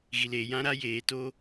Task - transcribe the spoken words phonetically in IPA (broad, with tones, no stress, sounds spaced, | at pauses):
ɣ i˨ l eː˨ j ã˦ ɾ a˦ j eː˨ t o˦